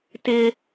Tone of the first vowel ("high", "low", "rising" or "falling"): high